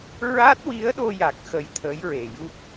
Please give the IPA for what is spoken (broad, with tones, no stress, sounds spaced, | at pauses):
ɹ a˦˥ t̚ w i˧˥ ə̯ ɗ o˧ j a˨˩ k̚ x ə˧ j t̪ʰ əː˧˥ j ɹ e˨˩ j u˦˥ k̚